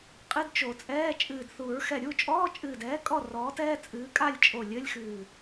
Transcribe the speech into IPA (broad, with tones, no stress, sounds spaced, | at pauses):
qʼ ɨ˧˥˧ d t͡ʃ o˨˩˦ t͡sʼ ɛː˧˥˧ t͡ʃʼ ɨː˧˩ d θ u˨˩˦ ɹ x ɛ˧˩ ɾʲ u˥˨ t͡ʃʼ ɔː˧˥˧ t͡ʃʼ ɨː˧˩ d ɛː˨˥ kʼ ɔ˥˨ r ɔː˨˥ t ɛː˧˥˧ t͡sʼ ɨː˨˥ kʼ a˥˨ lʲ t͡ʃʼ o˧˩ lʲ ɘ˧˥˧ lʲ x ɨː˧˩